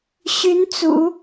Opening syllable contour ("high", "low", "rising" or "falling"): rising